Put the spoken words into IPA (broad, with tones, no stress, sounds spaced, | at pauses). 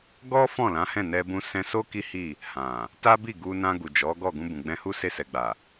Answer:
ɡ ɔ˦ f ɔ̃˦˨ l ã˨˦ h ɛ̃˦˨ n ɛ˧ b ũ˧ s ɛ̃˧ s o˦ k i˦ h i˦˨ | h ã˨ | t a˦ b i˦˨ ɡ u˧ n ã˧ ɡ u˨ d͡ʒ ɔ˨˦ ɡ ɔ˦˨ ɡ ũ˧ b ũ˨ ɡ͡b ɛ̃˧ h u˦ s e˧ s ɛ˨ ɡ͡b a˨